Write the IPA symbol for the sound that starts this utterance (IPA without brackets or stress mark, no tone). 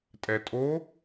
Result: tʼ